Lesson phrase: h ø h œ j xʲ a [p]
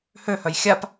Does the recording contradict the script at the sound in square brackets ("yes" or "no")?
no